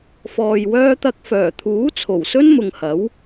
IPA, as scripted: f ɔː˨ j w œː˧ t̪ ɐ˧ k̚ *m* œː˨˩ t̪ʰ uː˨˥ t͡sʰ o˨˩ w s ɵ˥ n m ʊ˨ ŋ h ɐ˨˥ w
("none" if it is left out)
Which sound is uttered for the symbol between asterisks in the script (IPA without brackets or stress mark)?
f